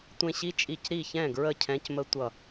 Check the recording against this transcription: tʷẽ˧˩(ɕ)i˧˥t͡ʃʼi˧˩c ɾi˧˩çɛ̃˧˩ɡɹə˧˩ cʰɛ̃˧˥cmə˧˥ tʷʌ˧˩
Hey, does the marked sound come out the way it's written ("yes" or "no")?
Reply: yes